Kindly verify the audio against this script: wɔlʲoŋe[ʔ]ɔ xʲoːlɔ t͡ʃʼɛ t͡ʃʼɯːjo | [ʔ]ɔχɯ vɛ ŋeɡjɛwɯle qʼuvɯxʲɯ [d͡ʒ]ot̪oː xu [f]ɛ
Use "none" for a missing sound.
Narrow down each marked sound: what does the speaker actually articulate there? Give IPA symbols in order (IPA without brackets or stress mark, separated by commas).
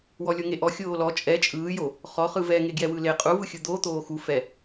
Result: ʔ, χ, d̪, f